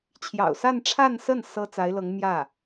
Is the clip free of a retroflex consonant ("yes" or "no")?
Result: no